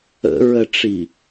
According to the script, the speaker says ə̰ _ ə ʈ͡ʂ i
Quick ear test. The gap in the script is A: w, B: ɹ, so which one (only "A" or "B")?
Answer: B